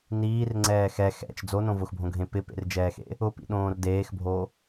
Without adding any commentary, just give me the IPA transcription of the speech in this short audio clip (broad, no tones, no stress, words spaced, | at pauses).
niːrŋ͡ǀɛː xɛ xɛ̰t͡ʃ d͡zonõ vʊxbʱõɡʱẽ pɪpḛrd͡ʒɛːxḛ | ʊpḭɗõːr deːxbʱo